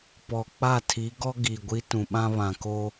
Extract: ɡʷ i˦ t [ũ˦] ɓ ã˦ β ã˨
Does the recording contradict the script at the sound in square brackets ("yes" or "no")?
yes